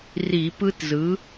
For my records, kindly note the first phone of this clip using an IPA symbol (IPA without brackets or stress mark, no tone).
r